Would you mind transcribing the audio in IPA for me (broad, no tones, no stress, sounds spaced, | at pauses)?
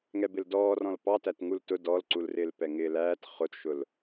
ŋ ɛ b ɪ l d ɔː r ɔ̃ l p ɑ t æ t ŋ u l t ʊ d ɔ l ǀ u l r ɪː l p ɛ ŋ ɪː l æː t χ ʊ t ʃ ʊ l